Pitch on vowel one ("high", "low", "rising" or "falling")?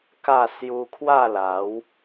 falling